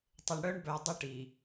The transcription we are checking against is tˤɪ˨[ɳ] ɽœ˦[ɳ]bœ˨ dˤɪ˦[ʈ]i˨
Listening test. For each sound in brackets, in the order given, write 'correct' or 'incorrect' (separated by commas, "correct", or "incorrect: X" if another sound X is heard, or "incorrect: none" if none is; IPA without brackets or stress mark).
correct, correct, correct